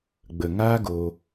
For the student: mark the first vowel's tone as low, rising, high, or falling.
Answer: low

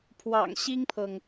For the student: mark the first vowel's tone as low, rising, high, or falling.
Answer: low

